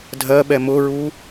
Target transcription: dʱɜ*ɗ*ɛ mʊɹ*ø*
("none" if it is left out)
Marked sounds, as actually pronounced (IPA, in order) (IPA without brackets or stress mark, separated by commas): ɓ, u